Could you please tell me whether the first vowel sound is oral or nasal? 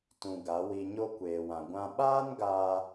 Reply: nasal